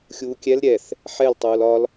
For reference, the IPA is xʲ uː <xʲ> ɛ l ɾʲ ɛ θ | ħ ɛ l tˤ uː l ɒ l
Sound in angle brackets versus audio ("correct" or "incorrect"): incorrect